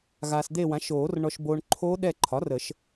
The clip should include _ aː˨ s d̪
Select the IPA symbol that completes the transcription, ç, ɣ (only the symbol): ɣ